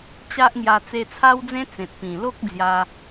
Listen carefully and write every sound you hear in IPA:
t͡ɕ a˦ ʔ ŋ j a˧ t͡s e˧ t͡sʰ a˦ w d͡z ẽ˦ t͡s ẽ˨ t̚ p ĩ˨˩ l o˦ k̚ d͡z j a˧

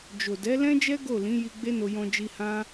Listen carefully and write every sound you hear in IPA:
d͡ʒ o˨ d ɛ˨˦ l ɛ̃˦ d͡ʒ ɛ˦ ɡ o˦˨ l ĩ˨˦ j i˧ ɡ͡b e˦ n o˧ j ɔ̃˧ d͡ʒ i˧ h ã˦

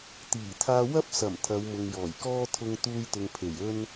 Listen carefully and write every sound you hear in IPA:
t̪ iː˨˩ t̪ʰ aː˧ w ɐ˥ p̚ s ɐ˨˩ m t̪ʰ ɐ˨˧ w m ʊ˨ ŋ j ɔː˨˩ j k ɔː˥ t̪ʰ ʊ˧ ŋ t̪ uː˧ j t̪ ʊ˨ ŋ pʰ e˨˩ j ɵ˥ n

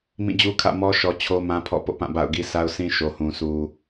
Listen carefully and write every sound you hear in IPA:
m ĩ˦˨ d͡ʑ u˦ kʰ ä̰˦˨ m ɔ˦ ʃ ɔ˦ t͡ɕʰ o˦ m ã˦ pʰ ɔ̰˦˨ p o̰˦˨ p ã˦˨ b a̰˦˨ ʊ̯ ɡ i˦ sʰ a˦ ʊ̯ s ĩ˦ ʃ o˨ h ũ˨ sʰ u˨

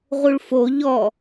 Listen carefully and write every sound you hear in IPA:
ʁ u ɭ f o ʎ ɔ

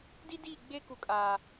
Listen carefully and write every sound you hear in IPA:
d i˦ d iː˦˨ ɡ͡b e˦ k u˨ kʼ aː˨

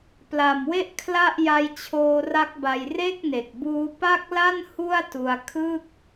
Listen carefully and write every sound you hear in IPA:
p l a˨˩ m w e˥˩ ʔ kʰ l a˥˩ ʔ j a˧ j t͡ɕʰ oː˧ r a˦˥ k̚ b a˧ j r e˥˩ k̚ n e˨˩ k̚ b uː˦˥ p a˥˩ k̚ l a˥˩ n h u˥˩ a̯ t u˧ a̯ kʰ ɯ˥˩ k̚

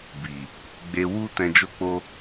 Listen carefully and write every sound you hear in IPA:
b i˨ | ɡ͡b e˨ w u˧ t ɛ̃˨ d͡ʒ o˧ k͡p o˧

